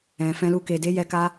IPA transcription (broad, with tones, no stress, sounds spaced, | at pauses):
ɛ̃˨ f ɛ̃˧ l u˧ k e˨ d e˨˦ j ɛ˧ k a˧